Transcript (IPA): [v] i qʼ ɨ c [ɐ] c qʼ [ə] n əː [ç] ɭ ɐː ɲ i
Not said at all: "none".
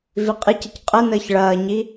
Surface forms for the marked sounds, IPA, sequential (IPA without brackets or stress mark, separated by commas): v, ɐ, ə, ç